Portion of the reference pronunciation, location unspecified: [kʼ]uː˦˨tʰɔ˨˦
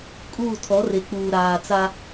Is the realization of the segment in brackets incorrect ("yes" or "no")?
no